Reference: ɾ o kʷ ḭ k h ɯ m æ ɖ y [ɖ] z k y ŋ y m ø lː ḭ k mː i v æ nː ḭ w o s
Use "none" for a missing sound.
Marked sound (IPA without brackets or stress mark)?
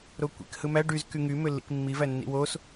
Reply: none